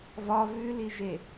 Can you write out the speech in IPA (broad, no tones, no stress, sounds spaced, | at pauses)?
v ɒ v ʉ l i ʒ e